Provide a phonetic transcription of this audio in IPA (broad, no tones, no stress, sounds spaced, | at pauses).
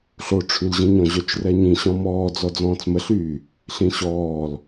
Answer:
ɬ o ʈ͡ʂʰ y l ʑ ĩ ɲ ɔ̃ ʑ œ t͡ʃ r ɛ ɲ ĩ ɕ ɔ̃ m ɔː d͡z ɔ d͡z ɔ̃ː t͡s m ə ɬ yː | ɬ ĩ ɕ ɔː l